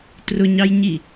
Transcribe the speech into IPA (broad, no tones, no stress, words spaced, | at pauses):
trʊɲɑjɲi